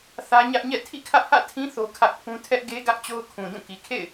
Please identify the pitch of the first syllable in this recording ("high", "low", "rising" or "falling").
high